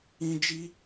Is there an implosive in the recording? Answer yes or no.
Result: no